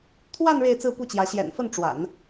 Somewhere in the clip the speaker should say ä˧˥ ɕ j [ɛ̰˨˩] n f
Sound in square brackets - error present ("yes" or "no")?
no